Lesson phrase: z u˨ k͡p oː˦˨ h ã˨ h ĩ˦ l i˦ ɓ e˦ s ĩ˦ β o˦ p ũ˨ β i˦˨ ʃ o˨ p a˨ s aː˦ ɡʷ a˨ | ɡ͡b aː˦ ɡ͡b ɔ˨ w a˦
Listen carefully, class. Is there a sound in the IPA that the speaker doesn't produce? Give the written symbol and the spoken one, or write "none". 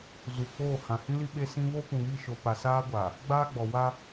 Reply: none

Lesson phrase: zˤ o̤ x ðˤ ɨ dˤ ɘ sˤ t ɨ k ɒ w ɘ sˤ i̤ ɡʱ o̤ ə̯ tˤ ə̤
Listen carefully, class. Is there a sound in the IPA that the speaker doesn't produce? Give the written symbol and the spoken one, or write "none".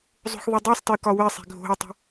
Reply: none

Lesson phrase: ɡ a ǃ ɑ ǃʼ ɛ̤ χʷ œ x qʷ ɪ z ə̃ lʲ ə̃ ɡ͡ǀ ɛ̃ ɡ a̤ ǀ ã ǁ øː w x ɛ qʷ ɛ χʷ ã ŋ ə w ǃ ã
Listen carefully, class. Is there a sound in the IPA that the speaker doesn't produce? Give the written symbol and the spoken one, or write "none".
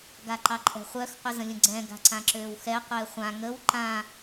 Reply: none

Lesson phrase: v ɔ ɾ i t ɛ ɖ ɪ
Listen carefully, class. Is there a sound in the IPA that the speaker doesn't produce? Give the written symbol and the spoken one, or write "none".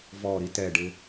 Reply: none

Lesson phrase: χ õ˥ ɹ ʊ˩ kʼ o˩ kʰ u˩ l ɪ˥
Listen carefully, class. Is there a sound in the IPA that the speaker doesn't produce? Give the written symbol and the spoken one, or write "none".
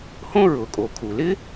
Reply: χ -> h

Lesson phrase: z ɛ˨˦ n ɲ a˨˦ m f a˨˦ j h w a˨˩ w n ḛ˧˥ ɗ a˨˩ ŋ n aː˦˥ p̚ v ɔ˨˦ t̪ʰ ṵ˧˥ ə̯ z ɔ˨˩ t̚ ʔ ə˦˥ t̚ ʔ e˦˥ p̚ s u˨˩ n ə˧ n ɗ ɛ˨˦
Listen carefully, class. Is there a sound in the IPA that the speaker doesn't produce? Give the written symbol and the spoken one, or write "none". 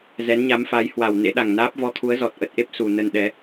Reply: ṵ˧˥ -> u˨˦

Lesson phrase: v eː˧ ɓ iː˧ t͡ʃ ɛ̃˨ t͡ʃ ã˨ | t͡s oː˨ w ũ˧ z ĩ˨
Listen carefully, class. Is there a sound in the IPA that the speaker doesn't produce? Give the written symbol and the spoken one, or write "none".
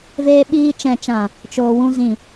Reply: t͡s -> t͡ʃ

